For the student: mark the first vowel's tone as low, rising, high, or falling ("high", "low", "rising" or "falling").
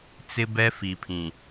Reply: high